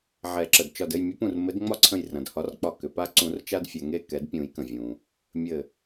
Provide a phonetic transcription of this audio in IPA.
ʕ ɛ˨˩˦ ǁ ə˩ d t͡ʃ ɒ˧˩ d ɘ˥˨ j mʲ ə˨˦ p ũ˧˩ r m ɘ˨˦ d ŋ͡m ɒ˦ ǀʰ ə̃˧˩ j r ɐ̃˩ d h ɒ˨˦ r k͡p ɒ˧˩ k ʏ˩ p a˦ ǀ ũ˨˩˦ r t͡ʃ a˦ d fʲ ɛ˩ ŋ e˧˩ k ɛ˨˩˦ d pʲ ũ˨˩˦ j k ə̃˩ vʲ ũ˩ | mʲ ɘ˧˩

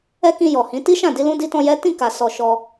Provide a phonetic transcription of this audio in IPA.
ɛ˦ k ĩ˧ j ɔ˨ h ĩ˨˦ t i˦ ʃ ã˦˨ d i˧ l ũ˧ d i˧ t ɔ̃˧ j ɛ˦ t ĩ˦˨ k a˨ s ɔ˨ ʃ ɔ˧

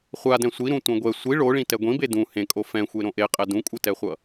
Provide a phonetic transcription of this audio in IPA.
χʷ a d ɛ̃ sʷ i ɾ ũ tʷ ɛ̃ ɡʷ ɛ sʷ i ɭ o ɭ ĩ t ɛ ɡʷ ĩ b e d ũ h ẽ kʼ o f ɛ̃ xʷ e ɾ õ ʔ e qʼ ɛ d ũ kʷʼ ɯ t ɛ χʷ ʌ

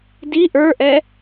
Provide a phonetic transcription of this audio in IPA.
d i ʔ ə˞ ʔ ɛ

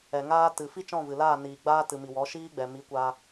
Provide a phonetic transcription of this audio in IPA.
ɛ˨ ŋ aː˦ t ɨ˨ f i˦ t͡ʃ ɔ̃˦˨ v ɨ˨ l aː˦˨ n iː˨ ɡ͡b aː˦ t ɨ˨ m i˨ w ɔ˨˦ ʃ iː˦ ɡ͡b ɛ˨ m i˨˦ kʷ aː˧

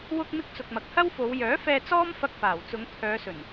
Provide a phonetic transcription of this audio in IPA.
w ʊ˧ k̚ m ɪ˧ k̚ t͡s ʊ˨ k̚ m ɐ˨ k̚ h ɐ˥ w f o˨˧ w j œː˨˥ f ɛː˧ t͡s ɔː˥ m f ɐ˧ k̚ f aː˨˩ w t͡s ʊ˨˧ ŋ pʰ œː˨˧ s ɵ˨˩ n

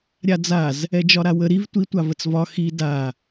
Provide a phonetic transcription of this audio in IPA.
ɾʲ a d͡z a z | ɛ d͡ʒ ɒ ɾ a w ə ɾ i v tʷ i tʷ a v ə t͡s v ɒ x i d a

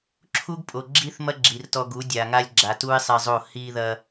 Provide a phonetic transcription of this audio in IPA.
ǁʰ u˦ ɡ pʼ o˨ ɡ͡ǁ i˦ θ m ɐ˦ ɡ͡ǁ i˨ r t ɔ˧ ɡ u˨˦ dʲ a˨ ŋ a˧ lʲ ɡ͡ǁ a˨ t u˦ ɪ̯ sˤ e˧ zˤ o˦˨ h i˧ ð ɐ˧

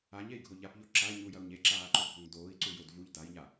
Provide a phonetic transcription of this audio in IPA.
a ɲ e i̯ ɡʱ o ʎ a p ʎ o ǁ a i̯ ɲ u j ɐ u̯ ɲ e ǁ aː ǃ o bʱ o ŋ d oː i̯ ǀ u j o d v u ʎ d a j ɲ a

